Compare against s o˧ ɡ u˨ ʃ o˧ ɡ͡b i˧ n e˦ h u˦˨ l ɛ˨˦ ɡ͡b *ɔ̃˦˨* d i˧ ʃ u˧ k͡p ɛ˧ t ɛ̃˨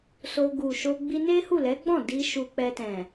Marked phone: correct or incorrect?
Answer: correct